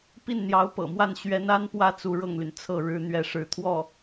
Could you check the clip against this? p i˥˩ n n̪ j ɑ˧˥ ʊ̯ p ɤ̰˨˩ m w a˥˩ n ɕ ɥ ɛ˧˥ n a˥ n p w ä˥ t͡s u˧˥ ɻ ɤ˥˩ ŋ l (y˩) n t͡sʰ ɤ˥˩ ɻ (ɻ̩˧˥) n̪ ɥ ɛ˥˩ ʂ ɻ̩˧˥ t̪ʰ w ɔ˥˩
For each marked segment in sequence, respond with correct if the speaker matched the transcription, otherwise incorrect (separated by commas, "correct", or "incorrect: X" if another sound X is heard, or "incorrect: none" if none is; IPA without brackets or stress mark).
correct, incorrect: ɻ̩˥